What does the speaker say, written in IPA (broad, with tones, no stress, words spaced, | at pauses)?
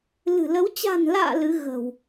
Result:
lɨ̤˨˩lə˨˦w t͡ɕa̤˨˩nla̰ː˧˨ lɨ˨˦ ɣə̤˨˩w